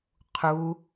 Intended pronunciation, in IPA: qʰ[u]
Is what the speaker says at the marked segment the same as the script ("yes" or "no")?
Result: yes